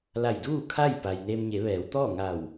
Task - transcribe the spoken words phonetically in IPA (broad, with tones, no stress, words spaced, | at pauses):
la˧˩jduː˥˨kʰa˥˨j pa˩jneː˧mɲe˩˧ ʋɛː˩˧wt̪ɔː˥˨ŋa˧˩w